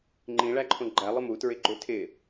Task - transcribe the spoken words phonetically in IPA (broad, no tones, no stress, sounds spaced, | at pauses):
ŋ͡ǃ ĩ ɭ æ ǃʰ õ ɡ͡ǃ æ lˠ ɪ m u t ɹ ɪ ɡ͡ǃ ø tʰ ɪ